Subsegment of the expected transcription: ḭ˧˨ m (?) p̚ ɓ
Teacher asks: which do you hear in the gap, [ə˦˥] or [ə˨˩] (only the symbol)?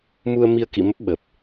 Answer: ə˦˥